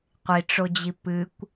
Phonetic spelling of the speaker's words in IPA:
qʷ i ʈ͡ʂ o d͡ʑ i p ɨ kʷ

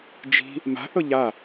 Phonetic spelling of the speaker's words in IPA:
d͡ʒ i̤ | m a̤ θ ɤ ʎ a

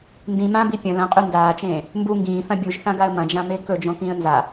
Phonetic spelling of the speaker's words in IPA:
n d ĩ m ã b i pʲ ɐ̃ l ɐ̃ qʼ ʉ n d aː t͡ʃ ẽː | m b u ŋ ɡ ĩː θ ɐ̃ bʲ u ʒ θ ã ɡ a ə̯ m ɐ̃ d͡ʒ ã m e k ɵ d͡ʒ õ k ĩː ə̯ n z a

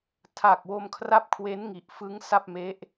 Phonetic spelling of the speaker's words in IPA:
tʰ a˨˩ k̚ w o˧ m kʰ r a˦˥ p̚ kʰ w e˦˥ n ŋ i˨˩ ʔ f ɯ˦˥ ŋ s a˥˩ p̚ m e˦˥ ʔ

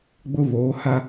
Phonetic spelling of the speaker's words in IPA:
ɡ͡b ʊ˦ β oː˨˦ h a˦

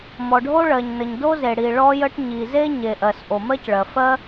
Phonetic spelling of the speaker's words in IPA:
m ɔ˩ ɖʱ o˥ ɭ ɜ˩ ɲ n ə˩ ɲ d o˥ z e˩ ɽ i˩ ɭ ɔ˥ j ə˥ ʈ ɲ i˩ z e˥ ɲ e˩ ʔ ɜ˩ s ʔ o˩ m ɜ˥ c ɭ ɜ˩ f ɜ˥

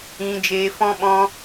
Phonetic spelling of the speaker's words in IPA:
ĩ˧ d͡ʒ eː˧ f ɔ̃˦ ɓ ɔ̃˦

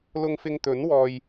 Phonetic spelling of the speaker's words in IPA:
l ʊ˧ ŋ f ɪ˧ ŋ t̪ ɵ˨˥ n w ɔː˧ j

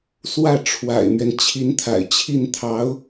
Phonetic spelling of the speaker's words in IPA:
s w ä˥˩ ʈ͡ʂʰ w a̰˨˩ ɪ̯ m ɥ ɛ˦ n t͡ɕʰ i˧˥ n t̪ʰ a̰˨˩ ɪ̯ t͡ɕʰ i˥˩ n t̪ʰ ɑ˧˥ ʊ̯

